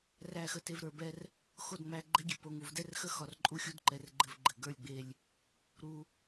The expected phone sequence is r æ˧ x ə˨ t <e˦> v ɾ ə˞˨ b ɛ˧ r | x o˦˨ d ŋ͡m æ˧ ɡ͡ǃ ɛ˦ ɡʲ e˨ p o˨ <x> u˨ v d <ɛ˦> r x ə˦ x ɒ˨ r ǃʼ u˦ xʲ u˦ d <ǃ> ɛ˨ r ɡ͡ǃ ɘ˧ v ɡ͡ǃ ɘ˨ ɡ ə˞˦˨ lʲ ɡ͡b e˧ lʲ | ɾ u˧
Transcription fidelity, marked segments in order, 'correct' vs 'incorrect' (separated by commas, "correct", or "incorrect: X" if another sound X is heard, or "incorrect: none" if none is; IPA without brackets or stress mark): incorrect: e˨, incorrect: ŋ, correct, correct